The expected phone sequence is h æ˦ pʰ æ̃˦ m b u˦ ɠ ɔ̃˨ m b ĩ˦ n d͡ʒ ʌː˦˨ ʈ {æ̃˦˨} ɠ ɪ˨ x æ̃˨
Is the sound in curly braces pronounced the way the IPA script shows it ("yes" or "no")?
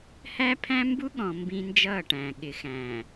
no